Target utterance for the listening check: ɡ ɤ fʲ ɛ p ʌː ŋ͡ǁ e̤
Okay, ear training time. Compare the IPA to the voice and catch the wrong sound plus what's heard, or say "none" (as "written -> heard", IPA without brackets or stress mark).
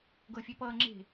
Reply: none